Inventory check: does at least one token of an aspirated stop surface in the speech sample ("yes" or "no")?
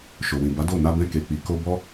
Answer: no